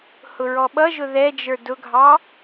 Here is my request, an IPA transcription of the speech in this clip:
h ʊ ɹ ɔ ɓ ʌ ʒ ʊ ð ɛ d͡ʒ ə˞ d ʊ ɡʱ ɑ

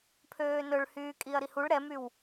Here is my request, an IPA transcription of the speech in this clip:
pʰ øː n ɵ ɭ h yː kʼ i ɐ̯ ɾ i h u ɭ ɾ ɛ m y w

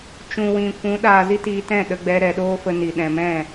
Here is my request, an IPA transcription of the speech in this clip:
t͡ʃ ũ˨ w ĩ˨ kʷ ũ˨˦ ɗ aː˨ z i˦ t iː˧ t ɛ̃˦˨ ɗ ə˧ ɡ͡b ɛ˧ ɾ ɛ˨ ɗ oː˦ f ə˧ n i˨ ɗ ɛ̃˨ m ɛ̃˦˨

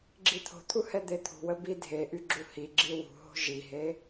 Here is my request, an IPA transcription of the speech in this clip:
ɡ͡ǁ i t̪ʰ o̤ t̪ʰ u h ɛ d̪ e t̪ʰ ṳ w ə b i dʱ e ʔ y ɡ͡ǁ u h i ɡ͡ǁ i w ṳ ɦ o̤ ʒ i ɦ e

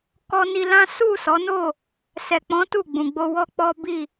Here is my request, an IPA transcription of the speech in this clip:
k ɔ˦ n i˧ l ã˦ s u˦˨ s ɔ˨˦ n o˦˨ | s ɛ˨ k͡p ɔ̃˨˦ t u˦˨ ɡ͡b ũ˨ ɡ͡b o˧ w ɔ˦ k͡p ɔ˦ b i˦˨

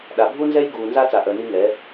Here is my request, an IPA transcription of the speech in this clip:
ɗ a˨ bʱ u˦ n z ɛ˦ j ɡ uː˨ n z a˦ t͡s a˨ ʔ œ˨ n i˦ ŋ ɛ˨˦

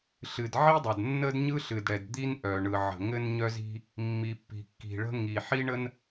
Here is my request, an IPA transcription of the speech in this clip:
ɬ ɨ˩ d ʕ i˥ dˤ ə˩ d nː ə˥ d ɲ ɯ˥ ɬ ɨ˩ d ɽ ɛ˩ d d̪ i˥ n ʔ œ˩ ɳ ɯ˩ ʕ ə̤˩ ŋ ɘ˥ n ɲ œ˥ z i̤˥ | mː i˩ pː i̤˩ kː i̤˩ ɭ ə̤˥ ŋ i˩ ħ i˥ ɳ ə˥ n

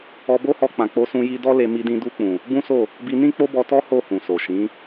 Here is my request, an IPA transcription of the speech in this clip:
ɔ˧ b o˦ h ɔ˧ k͡p ã˨ k͡p o˧ s ũ˧ j i˧ d ɔ˦ l e˧ m i˧ d ĩ˧ d u˧ k͡p ũ˨ | b ũ˦ s o˦˨ | b i˧ n ĩ˦ k͡p o˦ b ɔ˧ t ɔ˦ h o˦˨ h ũ˨ s o˨ ʃ ĩ˨˦

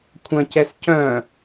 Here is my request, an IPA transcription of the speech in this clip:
kʷʰ ɐ̃ c ɛ s c œ̃

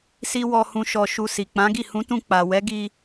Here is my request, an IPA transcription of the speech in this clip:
s i˦ w ɔ˧ h ũ˧ ʃ ɔ˧ ʃ u˧ s i˨ k͡p ã˨˦ ɡ i˦˨ h ũ˨˦ t ũ˧ k͡p a˨ w ɛ˨˦ ɡ i˧

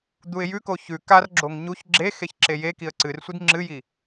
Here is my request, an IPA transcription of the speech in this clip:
d̪ u ɪ̯ j ʉ k o ç ʉ k a r ɡ͡ǁ o ŋ ɲ u ç ɡ͡ǁ e x e ç ǁ e j e k i ə̯ ǀ ɨ r sʷ i d ŋ͡ǁ ɨ j i

